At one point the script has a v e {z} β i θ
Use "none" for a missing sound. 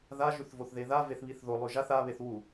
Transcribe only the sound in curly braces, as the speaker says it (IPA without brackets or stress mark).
θ